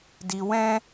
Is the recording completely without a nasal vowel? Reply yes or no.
no